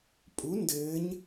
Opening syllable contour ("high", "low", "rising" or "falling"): rising